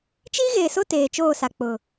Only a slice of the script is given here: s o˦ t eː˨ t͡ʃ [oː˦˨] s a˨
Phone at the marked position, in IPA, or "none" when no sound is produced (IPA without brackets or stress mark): oː˦˨